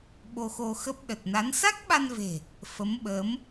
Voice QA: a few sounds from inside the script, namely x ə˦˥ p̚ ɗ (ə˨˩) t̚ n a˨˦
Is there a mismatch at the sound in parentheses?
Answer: no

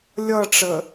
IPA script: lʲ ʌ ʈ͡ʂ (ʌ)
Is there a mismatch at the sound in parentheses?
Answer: yes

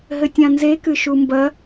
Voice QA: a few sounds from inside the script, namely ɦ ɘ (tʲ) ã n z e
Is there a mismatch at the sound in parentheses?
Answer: no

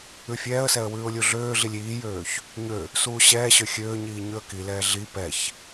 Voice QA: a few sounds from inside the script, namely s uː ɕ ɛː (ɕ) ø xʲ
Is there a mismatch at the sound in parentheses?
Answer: no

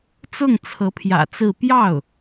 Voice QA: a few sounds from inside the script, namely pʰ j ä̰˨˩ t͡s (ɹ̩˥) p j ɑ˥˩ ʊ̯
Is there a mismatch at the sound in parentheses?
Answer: yes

